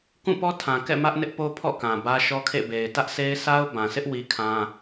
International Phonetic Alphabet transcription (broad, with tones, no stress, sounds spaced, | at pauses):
k ũ˦˨ p ɔ˦ tʰ ã˨ k ɛ̰˦˨ m ä˦ ʔ n ɪ˦ ʔ p o˦ pʰ ɔ̰˦˨ k ã˨ b ä˦ ʃ ɔ˦ kʰ ḛ˦˨ b e˨ ɪ̯ t ä˦ ʔ sʰ e˦ ɪ̯ s a˦ ʊ̯ b ã˨ s ɪ˦ ʔ w i˦ kʰ ã˦